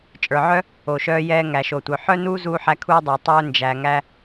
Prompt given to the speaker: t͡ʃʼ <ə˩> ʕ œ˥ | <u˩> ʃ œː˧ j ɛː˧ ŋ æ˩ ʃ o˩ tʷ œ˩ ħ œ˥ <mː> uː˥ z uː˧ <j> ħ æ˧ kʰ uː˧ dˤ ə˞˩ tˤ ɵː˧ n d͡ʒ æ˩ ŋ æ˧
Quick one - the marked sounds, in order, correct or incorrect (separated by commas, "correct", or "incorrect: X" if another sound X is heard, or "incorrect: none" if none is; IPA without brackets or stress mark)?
incorrect: ə˞˩, incorrect: o˩, incorrect: n, incorrect: none